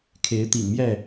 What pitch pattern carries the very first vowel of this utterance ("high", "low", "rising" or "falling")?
rising